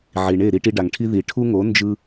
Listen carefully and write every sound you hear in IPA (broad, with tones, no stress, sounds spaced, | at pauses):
ʕ i˩ ɳ e˥˩ ɾ i˥ ʈ i˧ ɖ a˩ ŋ ʈʰ i˥ ð i˩ ʈʰ u˥ ŋ o˩˥ n d͡ʒ ɯ˧